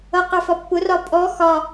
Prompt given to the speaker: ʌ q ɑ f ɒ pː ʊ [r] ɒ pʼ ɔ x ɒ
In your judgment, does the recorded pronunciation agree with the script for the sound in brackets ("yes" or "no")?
yes